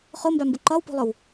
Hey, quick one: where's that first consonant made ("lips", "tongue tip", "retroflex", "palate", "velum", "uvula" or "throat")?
uvula